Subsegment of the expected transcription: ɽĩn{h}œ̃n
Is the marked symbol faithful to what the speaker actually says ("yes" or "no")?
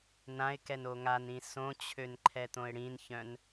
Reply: no